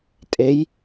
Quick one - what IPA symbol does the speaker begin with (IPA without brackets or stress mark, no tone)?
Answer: tʼ